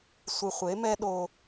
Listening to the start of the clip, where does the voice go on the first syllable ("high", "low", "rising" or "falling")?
low